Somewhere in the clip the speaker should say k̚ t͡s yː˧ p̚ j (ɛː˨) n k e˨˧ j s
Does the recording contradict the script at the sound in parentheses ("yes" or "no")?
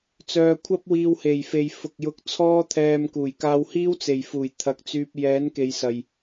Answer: yes